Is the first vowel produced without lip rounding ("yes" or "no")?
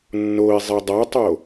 no